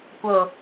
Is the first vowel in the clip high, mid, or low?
mid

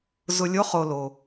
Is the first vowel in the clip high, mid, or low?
high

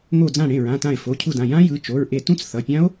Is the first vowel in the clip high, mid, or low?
mid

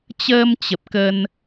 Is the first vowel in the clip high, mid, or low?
mid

